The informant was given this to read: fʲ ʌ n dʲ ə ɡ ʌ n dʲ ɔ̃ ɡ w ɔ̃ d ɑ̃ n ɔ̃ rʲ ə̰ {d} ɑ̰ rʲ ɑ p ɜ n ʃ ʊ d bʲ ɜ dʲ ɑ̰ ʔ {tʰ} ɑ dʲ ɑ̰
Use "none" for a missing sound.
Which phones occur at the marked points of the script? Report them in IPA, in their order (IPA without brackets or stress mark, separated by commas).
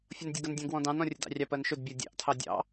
d, tʰ